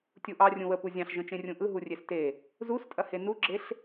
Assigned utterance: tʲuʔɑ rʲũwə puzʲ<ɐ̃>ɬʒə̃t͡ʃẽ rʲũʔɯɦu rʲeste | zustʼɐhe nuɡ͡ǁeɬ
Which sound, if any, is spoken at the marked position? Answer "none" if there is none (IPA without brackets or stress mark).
ɑ̃